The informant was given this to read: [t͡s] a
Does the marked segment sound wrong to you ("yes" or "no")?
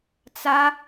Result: no